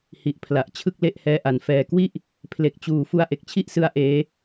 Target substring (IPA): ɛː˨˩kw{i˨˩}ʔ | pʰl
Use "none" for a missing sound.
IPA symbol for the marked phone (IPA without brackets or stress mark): i˥˩